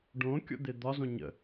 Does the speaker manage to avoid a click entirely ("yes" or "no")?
yes